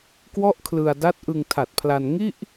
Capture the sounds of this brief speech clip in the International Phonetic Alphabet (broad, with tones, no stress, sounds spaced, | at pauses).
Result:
k w ɔ˥˩ ʔ kʰ l ɯ˧ a̯ d a˦˥ t̚ ʔ ɯ˧ ŋ tʰ a˨˩ t̚ pʰ l a˧ n ŋ i˥˩ ʔ